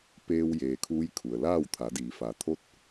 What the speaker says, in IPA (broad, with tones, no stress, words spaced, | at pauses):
peː˧w jeː˩kʰuː˧˥j kʰu˩ə̯laː˥˨w t̪ʰa˩˧diː˩˧ fa˩˧t̪ʰo˥˨t̚